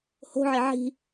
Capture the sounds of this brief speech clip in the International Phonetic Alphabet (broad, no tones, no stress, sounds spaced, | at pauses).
h o̤ ʕ ɪ ʕ i̤